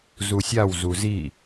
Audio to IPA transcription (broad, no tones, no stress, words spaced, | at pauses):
zusʲaw zuzi